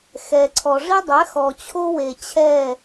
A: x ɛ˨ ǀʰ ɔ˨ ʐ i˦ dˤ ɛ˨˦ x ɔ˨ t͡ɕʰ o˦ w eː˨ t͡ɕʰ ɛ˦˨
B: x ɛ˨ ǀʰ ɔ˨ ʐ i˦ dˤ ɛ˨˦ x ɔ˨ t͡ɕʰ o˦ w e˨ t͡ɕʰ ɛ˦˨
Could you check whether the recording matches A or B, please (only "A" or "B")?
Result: B